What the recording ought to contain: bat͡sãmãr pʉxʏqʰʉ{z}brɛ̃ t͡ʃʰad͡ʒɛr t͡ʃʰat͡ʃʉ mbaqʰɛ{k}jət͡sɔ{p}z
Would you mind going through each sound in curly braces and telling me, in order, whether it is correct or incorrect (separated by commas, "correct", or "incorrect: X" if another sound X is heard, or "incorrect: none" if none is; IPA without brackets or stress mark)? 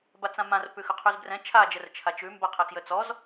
correct, correct, incorrect: none